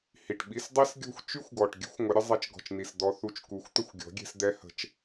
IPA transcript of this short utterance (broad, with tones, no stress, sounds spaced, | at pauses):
h i˨ ʈ ɓ i˧ s dˤ i˦ s ɡʲ ɔ̤˦ xʷ t͡ʃ y˦ xʷ ɡ ɔ˨ ʈ ɡʲ ə̤˦ xʷ ŋʷ ə˨˦ ɾʲ ə˧ zˤ ɛ˧ t͡ʃ ɡ ɔ̤˨ t͡ʃ n i˨ s d̪ ɔ˧ θ u˧ t͡ʃ k u˨ xʷ t̪ ə˦˨ xʷ ɡʲ ɔ̤˨˦ ɡʲ ɛ̤˧ s d̪ ɛ˦ h ə̤˧ t͡ʃ